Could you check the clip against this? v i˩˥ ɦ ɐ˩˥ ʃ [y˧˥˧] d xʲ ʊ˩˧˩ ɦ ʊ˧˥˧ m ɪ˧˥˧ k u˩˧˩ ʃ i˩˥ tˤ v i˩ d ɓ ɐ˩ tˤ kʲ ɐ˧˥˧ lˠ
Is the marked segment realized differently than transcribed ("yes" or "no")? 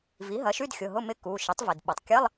no